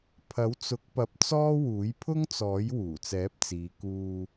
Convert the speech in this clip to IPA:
pʰ ɐ˨˥ w t͡s ʊ˨˥ k̚ p ɐ˧ p̚ t͡s ɔː˥ w uː˨˥ j pʰ ʊ˥ ŋ t͡s ɔː˨˥ j w uː˨˩ t͡s ɛː˨˥ p̚ t͡s iː˨ k uː˧

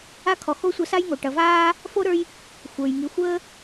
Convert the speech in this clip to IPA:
a˥ kʰ ɔ˨ x o˥ sʷ ɐ˦ s a˥ j ŋ o˩ ʈ ɐ˨ v aː˥ | f o˥ ɾ ə˞˦ j | xʷ ə˞˩ j ŋ i˨ xʷ əː˥

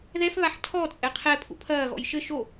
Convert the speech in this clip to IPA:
ð ɛ f β a ħ tʰ ɔ t͡sʼ ɛ qʰ ɛ pʰ ṵ pʰ ɐː ɣ ɔ̰ j ʃ ɘ ʃ o

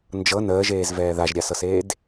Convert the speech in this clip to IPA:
n d͡ʒ ɤ n əː ʒ eː z v ɛː ð a ʒ ɾʲ a s ɤ s eː d

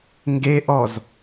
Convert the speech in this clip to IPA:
ŋ ɡ e ʔ ɔ z

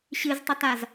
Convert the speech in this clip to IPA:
ɕ ɨ z tˤ ə t a z

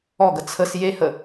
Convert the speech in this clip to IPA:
ɔ ɡ ə t͡sʰ ə s j e h ə

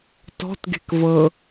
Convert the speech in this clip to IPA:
t ɔ̤ t ɡ e̤ k v ɤ

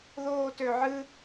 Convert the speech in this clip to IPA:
ð oː t ø ʕ ɨ

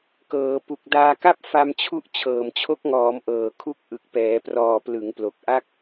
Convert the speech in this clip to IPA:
k ɤː˩˦ p u˨˩ k̚ d aː˧ k a˥˩ p̚ f a˧ m t͡ɕʰ u˦˥ ʔ t͡ɕʰ ɤː˨˩ m t͡ɕʰ o˦˥ k̚ ŋ ɔː˩˦ m ʔ ɤː˨˩ kʰ u˦˥ k̚ ʔ ɯ˨˩ k̚ p ɛː˩˦ p r ɔː˨˩ p l ɯ˩˦ ŋ p l o˨˩ k̚ ʔ a˦˥ k̚

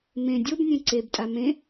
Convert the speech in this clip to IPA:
m ẽ dʲ o b nʲ ẽ ǀ e b tʼ a m ẽ

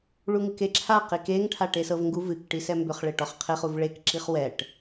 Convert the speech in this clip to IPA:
ɭ u ŋ ɨ k e ǁʰ a q i k e ŋ ʈʰ a ʈ e s ɤ v ŋ ɡ u v ɨ k ʈ i s ɛ m b ʏ χ ɭ e ʈ ɔ χ qʰ e χ u v ɭ e k ǁ i χ w ɛ ʈ

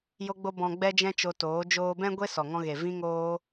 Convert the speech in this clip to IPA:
j o˦ ɡ͡b o˦ b ɔ̃˧ ɡ͡b ɛ˦ d͡ʒ ɛ̃˦ t͡ʃ o˧ t oː˨˦ d͡ʒ oː˧ b ɛ̃˦ ɡʷ e˦ s ɔ˨ ŋ ɔ̃˧ ɣ e˨ v ĩ˦ ŋ oː˦

